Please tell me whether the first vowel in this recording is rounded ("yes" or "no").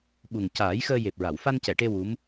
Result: yes